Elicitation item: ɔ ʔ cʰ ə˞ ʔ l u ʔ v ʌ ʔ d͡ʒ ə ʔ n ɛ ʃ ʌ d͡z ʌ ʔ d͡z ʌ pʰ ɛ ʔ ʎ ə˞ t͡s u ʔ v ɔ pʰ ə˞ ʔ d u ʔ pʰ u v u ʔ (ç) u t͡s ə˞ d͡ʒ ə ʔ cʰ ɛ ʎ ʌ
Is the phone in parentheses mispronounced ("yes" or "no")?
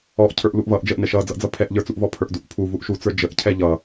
yes